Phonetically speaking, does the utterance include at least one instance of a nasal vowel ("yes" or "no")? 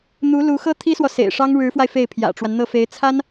no